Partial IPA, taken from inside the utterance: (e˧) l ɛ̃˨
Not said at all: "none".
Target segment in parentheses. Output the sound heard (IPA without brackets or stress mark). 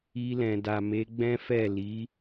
i˧